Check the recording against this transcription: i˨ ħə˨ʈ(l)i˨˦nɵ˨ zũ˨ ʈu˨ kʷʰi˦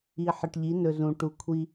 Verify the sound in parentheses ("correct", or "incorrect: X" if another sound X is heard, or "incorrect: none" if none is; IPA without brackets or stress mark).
incorrect: ʎ